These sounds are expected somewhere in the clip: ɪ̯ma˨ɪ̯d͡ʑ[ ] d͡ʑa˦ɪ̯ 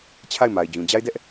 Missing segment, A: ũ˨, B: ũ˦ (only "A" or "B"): A